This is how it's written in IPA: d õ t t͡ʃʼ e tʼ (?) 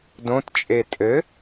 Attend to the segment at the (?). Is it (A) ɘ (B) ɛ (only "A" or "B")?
A